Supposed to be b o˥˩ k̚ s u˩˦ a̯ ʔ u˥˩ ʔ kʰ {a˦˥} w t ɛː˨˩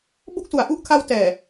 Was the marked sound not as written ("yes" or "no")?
no